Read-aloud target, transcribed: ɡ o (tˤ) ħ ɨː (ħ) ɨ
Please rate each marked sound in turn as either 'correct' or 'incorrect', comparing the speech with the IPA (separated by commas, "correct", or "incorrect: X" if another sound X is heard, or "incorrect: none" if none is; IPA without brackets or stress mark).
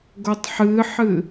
correct, correct